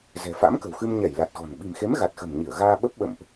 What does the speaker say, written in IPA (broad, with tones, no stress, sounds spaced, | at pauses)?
z ɛ̤˨˩ f a̰˧˥ m k ə̤˨˩ w x ɨ˧ m ɲ ɛ˧˩ j l a˨˩ t̚ ɣ ɔ̤˨˩ n ɓ i̤˨˩ m x e˨˦ m ɣ a˨˩ t̚ x ə̤˨˩ m ɲ i˧˩ ə̯ ɣ aː˧ ɓ ə˦˥ p̚ ɓ ə̰˧˨ m ʔ